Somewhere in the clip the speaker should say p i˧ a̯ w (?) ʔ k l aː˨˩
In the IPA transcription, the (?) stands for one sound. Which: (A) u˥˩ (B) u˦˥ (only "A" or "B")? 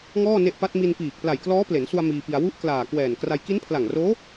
B